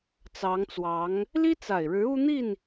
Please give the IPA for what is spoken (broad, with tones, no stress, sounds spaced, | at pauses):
t͡s ɑ˧˥ ŋ t͡s w ɑ˧˥ ŋ | l i˥ t͡s a˨˩ ɪ̯ ɻ ɻ̩˧˥ u˥ n̪ i˥˩ n